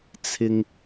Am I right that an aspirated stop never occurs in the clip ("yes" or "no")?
no